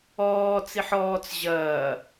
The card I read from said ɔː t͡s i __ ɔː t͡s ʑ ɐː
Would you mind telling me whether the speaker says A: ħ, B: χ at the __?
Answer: A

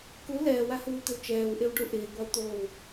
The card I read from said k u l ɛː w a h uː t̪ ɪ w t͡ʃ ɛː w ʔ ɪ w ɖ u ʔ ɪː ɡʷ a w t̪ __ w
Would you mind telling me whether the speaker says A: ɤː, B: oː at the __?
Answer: B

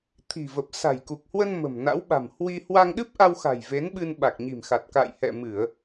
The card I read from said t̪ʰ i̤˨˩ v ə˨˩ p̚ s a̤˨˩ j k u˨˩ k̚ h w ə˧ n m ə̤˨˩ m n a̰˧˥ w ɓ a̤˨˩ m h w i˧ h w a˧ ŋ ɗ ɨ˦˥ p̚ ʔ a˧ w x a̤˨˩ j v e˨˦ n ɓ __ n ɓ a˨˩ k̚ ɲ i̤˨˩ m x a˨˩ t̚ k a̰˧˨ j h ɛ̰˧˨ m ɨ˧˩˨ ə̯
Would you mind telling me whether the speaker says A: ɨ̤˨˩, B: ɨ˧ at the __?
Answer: B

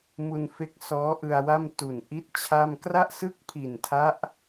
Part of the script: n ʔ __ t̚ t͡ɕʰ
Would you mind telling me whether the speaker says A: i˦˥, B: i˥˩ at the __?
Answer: A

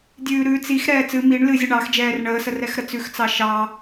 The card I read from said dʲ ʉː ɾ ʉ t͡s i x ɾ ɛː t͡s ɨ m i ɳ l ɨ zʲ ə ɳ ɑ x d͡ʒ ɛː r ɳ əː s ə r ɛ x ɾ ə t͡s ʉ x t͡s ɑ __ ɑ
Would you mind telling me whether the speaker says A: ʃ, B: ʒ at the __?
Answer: A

